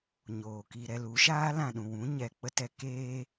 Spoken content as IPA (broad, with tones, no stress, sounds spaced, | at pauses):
ɲ oː˨ k i˧ ɾ ɛ˧ l u˨˦ ʃ aː˦ l ã˨ ɗ ũ˨ w ũ˨˦ ɲ ɛ˨ k͡p ə˦ t ɛ˧ k eː˦